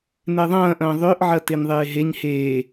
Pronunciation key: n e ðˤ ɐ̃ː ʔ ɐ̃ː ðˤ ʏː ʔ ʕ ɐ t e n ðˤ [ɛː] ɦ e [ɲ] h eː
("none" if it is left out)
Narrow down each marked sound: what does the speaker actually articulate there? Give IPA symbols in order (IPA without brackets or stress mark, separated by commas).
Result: eː, ɲ